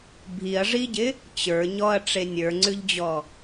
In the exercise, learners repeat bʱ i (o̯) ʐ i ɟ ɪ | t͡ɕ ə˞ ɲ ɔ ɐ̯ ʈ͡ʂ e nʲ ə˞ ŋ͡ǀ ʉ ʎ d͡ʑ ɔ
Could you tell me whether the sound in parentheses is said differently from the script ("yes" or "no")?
yes